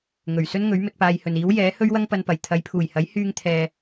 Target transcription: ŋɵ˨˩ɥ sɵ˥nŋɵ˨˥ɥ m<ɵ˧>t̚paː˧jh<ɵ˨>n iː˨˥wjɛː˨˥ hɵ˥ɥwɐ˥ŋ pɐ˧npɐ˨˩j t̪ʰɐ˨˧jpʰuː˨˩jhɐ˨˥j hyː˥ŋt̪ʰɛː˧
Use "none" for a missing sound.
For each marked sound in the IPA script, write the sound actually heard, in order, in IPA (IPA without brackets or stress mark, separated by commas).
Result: ɵ˧, ɵ˨